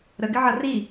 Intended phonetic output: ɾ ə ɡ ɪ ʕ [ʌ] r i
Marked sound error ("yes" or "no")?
no